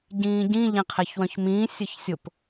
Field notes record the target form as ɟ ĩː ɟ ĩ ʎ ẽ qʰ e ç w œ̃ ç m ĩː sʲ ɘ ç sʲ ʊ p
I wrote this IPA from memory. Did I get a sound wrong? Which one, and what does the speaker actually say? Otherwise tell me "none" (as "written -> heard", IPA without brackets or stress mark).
none